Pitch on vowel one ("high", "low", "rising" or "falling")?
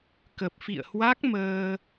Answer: low